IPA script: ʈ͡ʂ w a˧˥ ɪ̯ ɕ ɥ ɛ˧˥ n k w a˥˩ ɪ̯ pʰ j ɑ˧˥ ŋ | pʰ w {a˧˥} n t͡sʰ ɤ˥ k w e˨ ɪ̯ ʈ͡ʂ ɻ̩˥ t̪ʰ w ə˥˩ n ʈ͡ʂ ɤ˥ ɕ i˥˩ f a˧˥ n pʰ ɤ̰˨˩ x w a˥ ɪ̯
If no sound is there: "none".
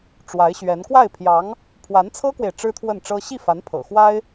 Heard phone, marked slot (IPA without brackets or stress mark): a˧˥